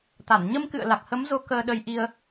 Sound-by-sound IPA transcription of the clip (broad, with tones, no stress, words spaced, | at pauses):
t̪a˧˩n ɲə˧mkɨ̰˧˨ə̯ la˨˩k̚hə˨˦mzo˨˦ kəː˧ɗə˧jʔi˧ə̯